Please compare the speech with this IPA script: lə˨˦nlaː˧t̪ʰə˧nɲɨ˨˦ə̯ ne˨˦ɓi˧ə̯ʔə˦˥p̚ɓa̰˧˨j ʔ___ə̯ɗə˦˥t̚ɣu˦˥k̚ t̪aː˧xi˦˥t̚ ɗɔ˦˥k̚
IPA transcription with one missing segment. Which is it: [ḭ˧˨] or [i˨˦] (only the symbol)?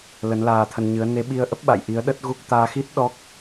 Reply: i˨˦